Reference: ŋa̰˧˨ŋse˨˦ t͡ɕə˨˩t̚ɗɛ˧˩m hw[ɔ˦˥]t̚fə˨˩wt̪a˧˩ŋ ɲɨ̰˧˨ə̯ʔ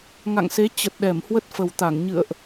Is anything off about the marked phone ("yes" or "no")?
yes